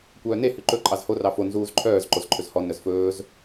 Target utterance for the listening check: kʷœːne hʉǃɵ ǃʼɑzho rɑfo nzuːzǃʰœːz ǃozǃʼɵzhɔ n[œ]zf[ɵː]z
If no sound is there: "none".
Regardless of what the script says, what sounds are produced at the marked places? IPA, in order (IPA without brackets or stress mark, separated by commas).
œ, ɵː